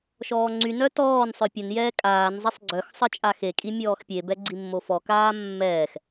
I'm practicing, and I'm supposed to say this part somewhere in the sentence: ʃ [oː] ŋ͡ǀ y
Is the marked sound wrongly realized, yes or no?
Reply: yes